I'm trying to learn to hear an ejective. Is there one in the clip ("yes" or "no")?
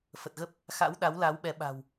no